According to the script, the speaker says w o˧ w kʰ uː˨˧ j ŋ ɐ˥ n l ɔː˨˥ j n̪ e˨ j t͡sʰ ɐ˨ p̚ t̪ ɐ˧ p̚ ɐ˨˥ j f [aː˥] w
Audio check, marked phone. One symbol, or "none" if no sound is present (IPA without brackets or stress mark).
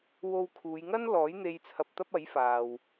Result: aː˨